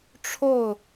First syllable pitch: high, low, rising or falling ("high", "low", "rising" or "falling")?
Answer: falling